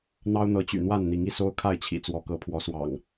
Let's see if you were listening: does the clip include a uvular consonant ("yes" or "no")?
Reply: no